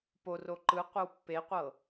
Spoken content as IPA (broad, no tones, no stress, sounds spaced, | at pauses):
p o r o ǃ ɯ qʷ e w pː e qʷ ɤ